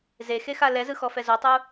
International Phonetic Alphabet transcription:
z e x e x a l ɛ z ɯ x ɔ f ɛ z o tˤ u

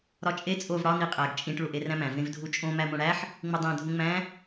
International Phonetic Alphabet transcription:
ɾ ɒ t͡ʃʼ e t͡sʼ o v ɽ ɒ n i qʼ æ ɡ t͡ʃʼ ĩ ʈ ɭ u ʔ e r æ̃ m æ̃ v ẽ v dʱ u t͡ʃʼ õ m æ m õ ɽ æ ħ | ŋ͡m u dˤ æ̃ dʱ ũ ŋ͡m æ̃

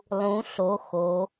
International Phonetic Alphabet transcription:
lˠ ũ˩˧ ɬ o˩˧ x o˩˧

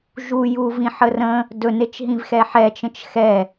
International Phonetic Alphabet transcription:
ʒ u j u v ĩ ħ ə r ə̃ | d ɵ n e t͡ʃ ɦ ĩ v x ɛ ħ ɛ t͡ʃ ə̃ t͡ʃ x ɛ

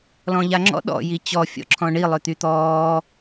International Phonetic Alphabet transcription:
l ɔ̃ ʎ a ŋ͡ǁ ɔ̰ ɗ ɔ̰ j i t͡ɕ ɔ fʲ ɔ̰ ǁʰ ɔ̃ ɳ i lˠ ø t̪ y t̪ ɔː

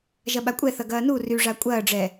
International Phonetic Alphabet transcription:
ʒ ɐ ɓ a kʷʼ ɛ θ ɐ ɡ ɐː n u r y ʐ a kʷʼ ɐː ɖ͡ʐ ɛ

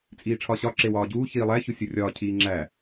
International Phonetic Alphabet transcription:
t͡sʼ iː ʈ͡ʂʰ ɒ ɕ ɒ ǁ e w ɒː ɟ uː ç iː lˠ æ ç u sʲ u rʲ ɒː cʰ iː ŋ͡ǁ æ

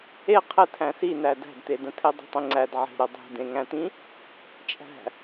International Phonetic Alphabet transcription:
e qʰ ɘ tʰ æ̃ s i n æ d æ̤ d t̪ e d ə̃ tʰ e dˤ ə̤ tˤ ĩ ŋ͡ǀ æ d ʕ e̤ ɾ ə dˤ e̤ d ẽ ŋ æ̃ t̪ ĩ | t͡ʃʼ æ̤

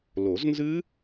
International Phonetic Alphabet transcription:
l o˨˩˦ z n z ɨ˦˥

